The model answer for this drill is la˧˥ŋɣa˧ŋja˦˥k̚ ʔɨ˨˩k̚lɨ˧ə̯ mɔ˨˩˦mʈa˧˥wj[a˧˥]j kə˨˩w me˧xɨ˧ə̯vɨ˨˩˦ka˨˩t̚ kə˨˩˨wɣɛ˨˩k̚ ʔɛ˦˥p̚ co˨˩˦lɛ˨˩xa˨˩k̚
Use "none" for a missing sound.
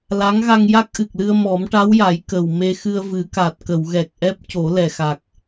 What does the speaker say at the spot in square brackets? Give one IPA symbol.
a˨˩˦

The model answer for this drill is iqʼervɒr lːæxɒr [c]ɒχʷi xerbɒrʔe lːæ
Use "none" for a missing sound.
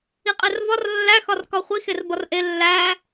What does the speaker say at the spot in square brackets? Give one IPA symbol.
k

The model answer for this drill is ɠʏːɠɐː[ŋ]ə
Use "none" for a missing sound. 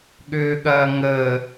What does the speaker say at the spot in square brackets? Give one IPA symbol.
ŋ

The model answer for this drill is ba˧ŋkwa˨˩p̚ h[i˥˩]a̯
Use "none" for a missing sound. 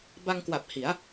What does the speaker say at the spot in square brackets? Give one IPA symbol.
i˩˦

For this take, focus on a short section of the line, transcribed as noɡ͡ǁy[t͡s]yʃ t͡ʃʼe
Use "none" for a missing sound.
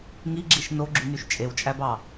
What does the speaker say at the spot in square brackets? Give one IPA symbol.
n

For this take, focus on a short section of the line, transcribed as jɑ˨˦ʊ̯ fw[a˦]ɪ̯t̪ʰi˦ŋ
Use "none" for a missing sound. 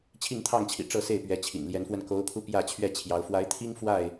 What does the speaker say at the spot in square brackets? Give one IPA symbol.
a˨˦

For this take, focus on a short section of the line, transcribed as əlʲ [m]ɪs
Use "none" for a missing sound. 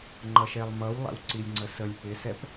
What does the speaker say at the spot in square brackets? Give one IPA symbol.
p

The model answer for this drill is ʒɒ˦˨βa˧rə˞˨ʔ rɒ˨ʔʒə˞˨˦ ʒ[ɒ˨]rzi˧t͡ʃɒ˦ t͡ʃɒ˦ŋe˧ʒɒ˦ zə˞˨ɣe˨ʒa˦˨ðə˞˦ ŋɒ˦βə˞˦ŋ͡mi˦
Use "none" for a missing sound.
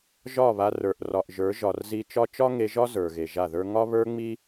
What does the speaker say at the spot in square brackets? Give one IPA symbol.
ɒ˨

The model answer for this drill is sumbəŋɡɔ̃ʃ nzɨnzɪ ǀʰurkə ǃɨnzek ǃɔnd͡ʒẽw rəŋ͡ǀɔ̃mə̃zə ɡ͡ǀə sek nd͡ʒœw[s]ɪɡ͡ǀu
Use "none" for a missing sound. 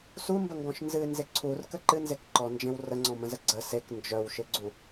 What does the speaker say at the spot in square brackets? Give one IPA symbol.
ʃ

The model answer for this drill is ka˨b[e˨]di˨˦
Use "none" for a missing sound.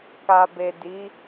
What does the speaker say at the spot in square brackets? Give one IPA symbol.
e˨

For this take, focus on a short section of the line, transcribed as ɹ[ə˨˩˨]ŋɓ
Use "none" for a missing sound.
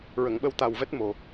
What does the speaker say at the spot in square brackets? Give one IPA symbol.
ə˨˩˨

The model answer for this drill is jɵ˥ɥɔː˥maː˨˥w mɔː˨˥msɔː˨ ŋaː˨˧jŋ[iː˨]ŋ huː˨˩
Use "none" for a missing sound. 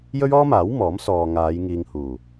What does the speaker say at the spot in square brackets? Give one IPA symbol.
iː˨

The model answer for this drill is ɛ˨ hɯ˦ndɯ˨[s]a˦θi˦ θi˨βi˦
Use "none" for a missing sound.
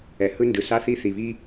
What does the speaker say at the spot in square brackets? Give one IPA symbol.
s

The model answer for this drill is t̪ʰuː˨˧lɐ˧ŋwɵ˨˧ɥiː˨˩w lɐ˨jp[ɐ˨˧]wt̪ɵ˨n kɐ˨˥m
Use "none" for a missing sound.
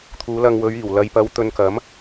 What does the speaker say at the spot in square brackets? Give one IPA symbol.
ɐ˨˧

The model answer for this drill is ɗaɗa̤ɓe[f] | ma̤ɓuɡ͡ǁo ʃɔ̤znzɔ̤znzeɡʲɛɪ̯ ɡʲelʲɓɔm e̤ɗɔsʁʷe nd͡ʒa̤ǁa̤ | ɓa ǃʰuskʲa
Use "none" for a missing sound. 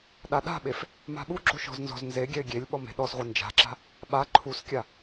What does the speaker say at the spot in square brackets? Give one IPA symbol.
f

